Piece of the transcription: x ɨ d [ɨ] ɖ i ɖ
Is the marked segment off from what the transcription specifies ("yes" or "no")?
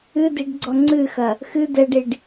yes